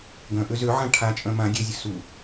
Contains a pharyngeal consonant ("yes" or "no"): yes